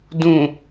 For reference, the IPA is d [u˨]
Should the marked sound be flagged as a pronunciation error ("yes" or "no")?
yes